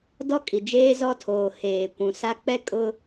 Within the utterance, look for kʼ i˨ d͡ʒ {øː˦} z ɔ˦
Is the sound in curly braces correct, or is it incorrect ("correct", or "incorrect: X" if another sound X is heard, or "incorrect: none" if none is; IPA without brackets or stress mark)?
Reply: incorrect: eː˦